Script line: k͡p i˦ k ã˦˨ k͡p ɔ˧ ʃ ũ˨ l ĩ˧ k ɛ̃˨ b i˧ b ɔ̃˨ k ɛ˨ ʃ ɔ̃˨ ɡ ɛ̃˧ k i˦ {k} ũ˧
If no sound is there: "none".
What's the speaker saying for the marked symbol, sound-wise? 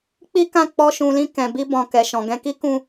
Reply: k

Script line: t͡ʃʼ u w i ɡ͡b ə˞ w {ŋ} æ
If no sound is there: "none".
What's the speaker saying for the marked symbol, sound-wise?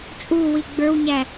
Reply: ɲ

